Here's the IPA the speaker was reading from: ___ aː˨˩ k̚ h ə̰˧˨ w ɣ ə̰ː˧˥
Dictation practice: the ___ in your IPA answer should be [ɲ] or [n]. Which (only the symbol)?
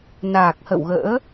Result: n